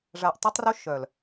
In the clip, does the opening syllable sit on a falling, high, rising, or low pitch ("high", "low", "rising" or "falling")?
low